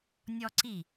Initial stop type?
click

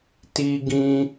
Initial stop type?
plain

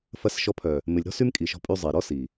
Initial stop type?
aspirated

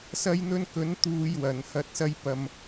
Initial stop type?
plain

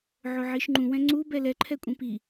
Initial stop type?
click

